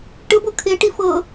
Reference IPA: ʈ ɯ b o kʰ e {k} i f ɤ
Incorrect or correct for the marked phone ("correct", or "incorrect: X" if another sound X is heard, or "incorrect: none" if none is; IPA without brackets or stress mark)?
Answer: incorrect: ʈ